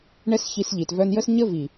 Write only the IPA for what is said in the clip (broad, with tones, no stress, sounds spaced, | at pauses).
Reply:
ɳ ɛ˦ s ç i˧ s ʎ i˨ t v œ˧ n j ə˦ s ɲ ə˦ v i˨